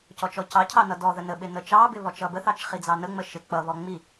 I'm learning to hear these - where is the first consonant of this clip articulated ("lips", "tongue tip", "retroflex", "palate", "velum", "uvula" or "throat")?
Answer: palate